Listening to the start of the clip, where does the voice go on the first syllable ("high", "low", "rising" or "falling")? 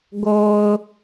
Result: low